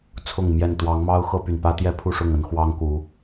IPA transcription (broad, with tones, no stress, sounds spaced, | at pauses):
t͡sʰ ʊ˥˨ ŋ m j ɛ˥˨ n t̪ w ɑ˨˦ ŋ m ɑ˦ ʊ̯ x ɤ˦ p y˨˩ n p ä˦ t̪ j ɛ˦ pʰ u˥˨ ʂ ʊ˥˨ ŋ ə˨˦ n x w ɑ˦ ŋ k u˨˦